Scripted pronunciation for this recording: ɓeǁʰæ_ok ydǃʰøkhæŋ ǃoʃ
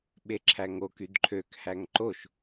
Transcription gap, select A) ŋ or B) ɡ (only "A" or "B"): A